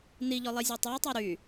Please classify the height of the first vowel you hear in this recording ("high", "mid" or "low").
high